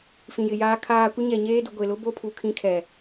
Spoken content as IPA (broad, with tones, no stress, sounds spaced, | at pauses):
f ĩ˨ j ɪ˨ j aː˦ kʰ aː˦ kʷ ɪ˦ ɲ ɛ˨ ɲ eː˦ d u˨ ɡʷ e˨ l ʊ˦ b o˦ pʰ u˨ kʰ ĩ˦ kʰ ɛ˨